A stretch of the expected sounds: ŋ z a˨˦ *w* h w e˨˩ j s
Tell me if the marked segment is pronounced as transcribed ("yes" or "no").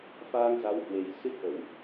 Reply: yes